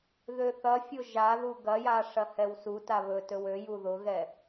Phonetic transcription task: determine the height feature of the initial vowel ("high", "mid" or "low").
mid